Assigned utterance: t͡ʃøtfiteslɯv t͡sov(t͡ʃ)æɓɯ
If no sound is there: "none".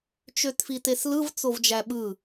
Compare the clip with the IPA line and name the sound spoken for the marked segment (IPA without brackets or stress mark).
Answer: d͡ʒ